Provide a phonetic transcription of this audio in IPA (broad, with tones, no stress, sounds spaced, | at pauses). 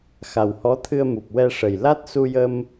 x a˨˩ w h ɔ˧˥ t̪ʰ ɨ˧ ə̯ m u˨˩ p̚ w ɛ˧ ʂ ə˨˩ j l a˦˥ t̚ s u˧ j ə˧ m